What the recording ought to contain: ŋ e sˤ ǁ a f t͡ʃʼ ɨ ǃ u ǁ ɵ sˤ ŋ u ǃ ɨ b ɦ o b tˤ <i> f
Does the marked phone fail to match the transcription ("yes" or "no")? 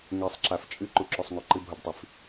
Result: no